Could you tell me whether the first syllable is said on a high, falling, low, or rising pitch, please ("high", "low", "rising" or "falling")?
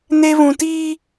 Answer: high